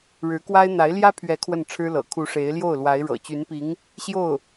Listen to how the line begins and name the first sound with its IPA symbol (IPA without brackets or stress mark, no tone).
ɻ